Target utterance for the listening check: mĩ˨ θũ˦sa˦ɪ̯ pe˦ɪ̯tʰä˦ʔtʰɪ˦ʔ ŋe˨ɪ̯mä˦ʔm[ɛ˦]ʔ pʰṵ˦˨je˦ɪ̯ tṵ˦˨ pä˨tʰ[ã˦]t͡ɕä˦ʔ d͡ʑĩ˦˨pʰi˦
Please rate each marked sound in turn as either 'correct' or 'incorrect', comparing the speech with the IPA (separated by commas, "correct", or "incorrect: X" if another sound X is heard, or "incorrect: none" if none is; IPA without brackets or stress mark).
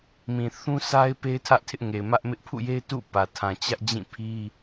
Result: incorrect: ɪ˦, incorrect: ã˨